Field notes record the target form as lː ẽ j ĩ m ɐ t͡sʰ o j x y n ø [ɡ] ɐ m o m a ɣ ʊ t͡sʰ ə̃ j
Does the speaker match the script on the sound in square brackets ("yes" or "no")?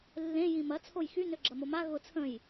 no